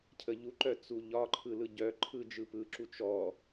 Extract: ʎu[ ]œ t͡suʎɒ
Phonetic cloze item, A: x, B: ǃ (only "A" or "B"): B